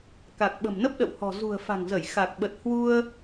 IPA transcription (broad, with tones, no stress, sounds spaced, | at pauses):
k a˨˩ k̚ ɓ ə̤˨˩ m n ə˦˥ p̚ ɗ ə̰˧˨ w h ɔ̤˨˩ z ṳ˨˩ ə̯ f a̤˨˩ ŋ z ə˧˩ j x a˨˩ k̚ ɓ ə˨˩ t̚ h w u˧ ə̯